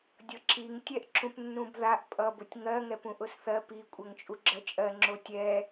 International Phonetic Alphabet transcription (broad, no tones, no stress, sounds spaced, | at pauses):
dʲ ʌ ǁ i ŋ tʲ ɛ ʔ ǁ ũ p nː ũ b ð a ʔ pʼ ʌ b ʊ tʲ ŋ ɜ ŋ ɛ p ũ ʔ ʊ s θ ɜ p i kʷʼ ɜ ŋ t͡ʃʼ u ɡ͡ǁ ɜ t͡ʃʼ ɜ ŋ͡ǁ o tʲ ɛ